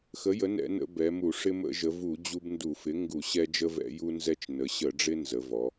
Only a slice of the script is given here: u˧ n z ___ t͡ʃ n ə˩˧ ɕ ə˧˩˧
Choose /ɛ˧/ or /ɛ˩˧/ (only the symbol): ɛ˧